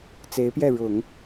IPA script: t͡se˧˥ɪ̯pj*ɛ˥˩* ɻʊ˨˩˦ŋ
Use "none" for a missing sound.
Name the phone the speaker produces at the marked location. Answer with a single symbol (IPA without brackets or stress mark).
ɛ˥˩